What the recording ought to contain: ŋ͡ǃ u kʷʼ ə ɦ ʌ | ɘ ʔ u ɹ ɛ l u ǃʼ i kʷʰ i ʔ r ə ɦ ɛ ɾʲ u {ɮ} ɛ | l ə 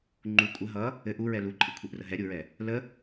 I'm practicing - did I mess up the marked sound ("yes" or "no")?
yes